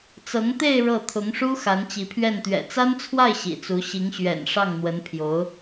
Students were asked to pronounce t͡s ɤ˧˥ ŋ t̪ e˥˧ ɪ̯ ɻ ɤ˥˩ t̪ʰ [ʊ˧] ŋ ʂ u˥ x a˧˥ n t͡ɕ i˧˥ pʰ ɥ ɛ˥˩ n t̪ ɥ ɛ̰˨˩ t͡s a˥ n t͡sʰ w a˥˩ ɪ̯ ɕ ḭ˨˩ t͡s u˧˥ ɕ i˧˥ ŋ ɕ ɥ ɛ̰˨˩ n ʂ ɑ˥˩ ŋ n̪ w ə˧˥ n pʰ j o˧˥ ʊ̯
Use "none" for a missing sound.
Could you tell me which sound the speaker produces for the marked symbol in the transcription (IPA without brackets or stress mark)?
ʊ˧˥